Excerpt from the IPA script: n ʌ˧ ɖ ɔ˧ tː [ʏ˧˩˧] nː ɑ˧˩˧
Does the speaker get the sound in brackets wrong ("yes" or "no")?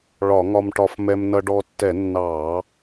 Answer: yes